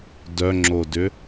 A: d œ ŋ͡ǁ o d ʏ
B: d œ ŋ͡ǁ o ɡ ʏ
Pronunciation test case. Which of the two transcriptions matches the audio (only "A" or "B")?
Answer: A